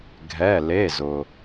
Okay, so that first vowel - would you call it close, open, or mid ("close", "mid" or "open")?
mid